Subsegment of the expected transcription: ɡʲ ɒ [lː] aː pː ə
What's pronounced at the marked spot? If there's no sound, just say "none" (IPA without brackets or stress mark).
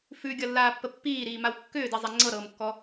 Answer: lː